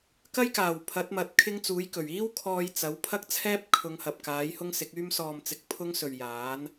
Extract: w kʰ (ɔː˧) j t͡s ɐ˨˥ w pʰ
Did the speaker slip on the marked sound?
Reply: no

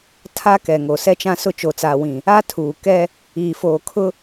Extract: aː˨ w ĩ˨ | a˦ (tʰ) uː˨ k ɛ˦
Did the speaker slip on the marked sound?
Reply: no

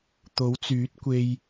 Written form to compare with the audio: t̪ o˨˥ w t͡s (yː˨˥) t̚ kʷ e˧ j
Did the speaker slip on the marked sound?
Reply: no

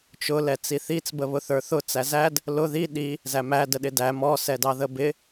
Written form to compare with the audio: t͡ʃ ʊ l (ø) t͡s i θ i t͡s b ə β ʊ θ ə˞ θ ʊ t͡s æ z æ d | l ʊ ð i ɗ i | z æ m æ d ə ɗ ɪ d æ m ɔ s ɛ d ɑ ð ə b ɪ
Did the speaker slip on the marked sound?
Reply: yes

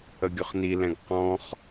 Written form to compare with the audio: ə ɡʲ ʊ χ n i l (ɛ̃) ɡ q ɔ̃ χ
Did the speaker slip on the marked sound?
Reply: no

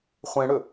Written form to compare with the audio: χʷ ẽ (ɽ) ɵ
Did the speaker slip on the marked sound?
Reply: no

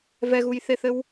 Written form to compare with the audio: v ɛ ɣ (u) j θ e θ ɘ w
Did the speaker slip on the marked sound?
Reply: no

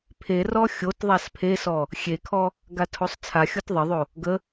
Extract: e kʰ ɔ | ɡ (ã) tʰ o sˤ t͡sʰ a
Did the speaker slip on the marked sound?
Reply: yes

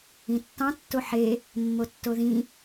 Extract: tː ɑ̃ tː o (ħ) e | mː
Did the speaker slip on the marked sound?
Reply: no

